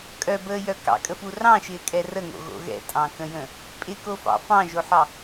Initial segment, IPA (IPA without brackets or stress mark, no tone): kʼ